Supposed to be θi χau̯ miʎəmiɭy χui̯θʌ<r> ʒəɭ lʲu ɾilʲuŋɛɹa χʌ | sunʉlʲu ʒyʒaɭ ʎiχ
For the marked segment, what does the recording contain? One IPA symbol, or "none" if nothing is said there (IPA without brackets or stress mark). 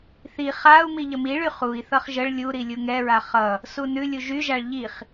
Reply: χ